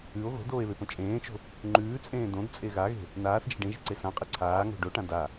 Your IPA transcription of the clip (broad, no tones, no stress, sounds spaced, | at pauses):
ʉ o̯ ɣ o̤ d oː e̯ β e p õ t͡ʃʼ ẽː t͡ʃ o̤ | ŋ͡ǃ ʉː t͡sʼ ẽː d õ d t͡sʼ e ɣ a ɣ e̤ | n aː θ d͡ʒ e̤ ɖ ẽ ʒ e̤ ǀ e s ã qʼ e ǀʰ aː ŋ o̤ ɖ o ʈ ã d a